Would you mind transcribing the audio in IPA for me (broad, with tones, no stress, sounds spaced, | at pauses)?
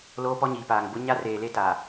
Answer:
l oː˦ p ɔ˦ ɲ iː˨ p aː˨ ŋ b ʊ˦ ɲ a˦ r eː˨ l e˦ t aː˨